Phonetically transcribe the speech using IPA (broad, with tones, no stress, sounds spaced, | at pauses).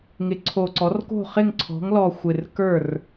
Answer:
ŋ ɪ˩˥ ǀʰ o˨˩ ǀ ɔ˩˥ r k o̤˥˩ χ ɪ˥˩ ŋ ǀʰ ɔ̤˩˥ ŋ l ɔ˨˩ xʷ ɪ˨˩ r k ə˞˥˩ r